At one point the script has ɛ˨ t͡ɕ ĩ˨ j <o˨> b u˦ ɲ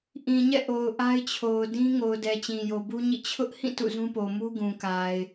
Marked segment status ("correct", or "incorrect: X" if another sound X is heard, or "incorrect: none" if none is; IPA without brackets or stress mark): correct